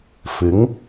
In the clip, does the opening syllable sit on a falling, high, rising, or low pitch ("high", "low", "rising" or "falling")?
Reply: rising